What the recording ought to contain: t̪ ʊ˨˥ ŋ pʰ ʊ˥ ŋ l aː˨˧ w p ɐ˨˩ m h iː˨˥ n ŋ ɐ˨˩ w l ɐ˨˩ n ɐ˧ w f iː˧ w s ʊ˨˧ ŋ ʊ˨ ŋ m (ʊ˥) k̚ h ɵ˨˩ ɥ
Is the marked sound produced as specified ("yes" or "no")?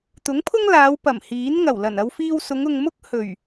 yes